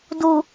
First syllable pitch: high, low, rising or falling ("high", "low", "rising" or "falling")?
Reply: low